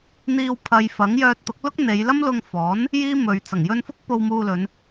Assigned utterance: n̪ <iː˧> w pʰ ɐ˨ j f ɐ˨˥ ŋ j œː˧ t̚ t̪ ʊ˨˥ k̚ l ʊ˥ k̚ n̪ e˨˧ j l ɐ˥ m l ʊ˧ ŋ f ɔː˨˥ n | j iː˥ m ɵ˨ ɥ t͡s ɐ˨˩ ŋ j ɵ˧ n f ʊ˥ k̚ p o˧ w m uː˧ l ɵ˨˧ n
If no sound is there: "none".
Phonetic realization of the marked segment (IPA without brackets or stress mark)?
iː˧